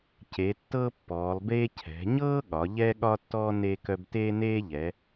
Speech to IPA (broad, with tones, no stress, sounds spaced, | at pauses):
c e˩˧ tː ɤ˦ pː ɔː˩˧ lˠ b eː˦ cʰ ɛ̤˩˧ ɲ ɤː˦ ɠ ɒ˩˧ ʎ ɛː˦ ɠ ɒ˦ tː ɔː˦ n eː˦ k œ˦ b t eː˦ n eː˦ ʎ ɛ˩˧